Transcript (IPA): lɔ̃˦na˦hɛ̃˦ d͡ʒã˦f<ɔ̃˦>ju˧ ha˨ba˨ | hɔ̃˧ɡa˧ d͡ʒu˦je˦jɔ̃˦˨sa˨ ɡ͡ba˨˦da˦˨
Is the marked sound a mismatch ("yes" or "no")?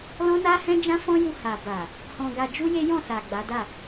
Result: no